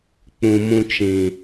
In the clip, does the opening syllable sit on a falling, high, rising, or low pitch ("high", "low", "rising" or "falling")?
low